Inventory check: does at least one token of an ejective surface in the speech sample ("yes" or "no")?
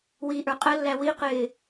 yes